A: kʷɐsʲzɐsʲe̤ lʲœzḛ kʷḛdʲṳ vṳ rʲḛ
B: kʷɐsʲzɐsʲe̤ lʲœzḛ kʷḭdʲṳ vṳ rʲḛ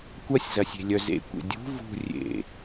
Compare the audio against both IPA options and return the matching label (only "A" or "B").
A